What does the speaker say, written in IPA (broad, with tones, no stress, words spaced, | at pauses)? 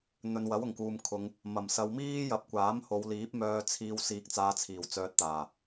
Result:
n̪ɵ˨nwɐ˨˥wʊ˨˩ŋkuː˨m kʰʊ˨˧ŋ | mɐ˨˩m sɐ˨˧wmiː˥jɐ˨p̚kʷaː˨˥m ho˨˧wliː˨˥p̚mœː˧t͡sʰiː˧w siː˧k̚t͡saː˧ t͡sʰiː˨˩wt͡sœː˧t̚t̪aː˨˩